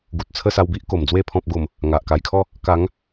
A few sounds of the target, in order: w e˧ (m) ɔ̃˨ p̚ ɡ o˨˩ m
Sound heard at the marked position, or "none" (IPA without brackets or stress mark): pʰ